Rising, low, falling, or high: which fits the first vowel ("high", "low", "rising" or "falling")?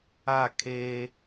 falling